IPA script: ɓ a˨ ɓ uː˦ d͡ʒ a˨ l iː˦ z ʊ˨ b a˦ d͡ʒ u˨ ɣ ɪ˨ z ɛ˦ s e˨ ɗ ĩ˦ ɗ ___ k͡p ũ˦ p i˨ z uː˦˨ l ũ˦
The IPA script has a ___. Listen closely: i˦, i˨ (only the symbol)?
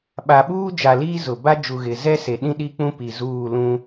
i˦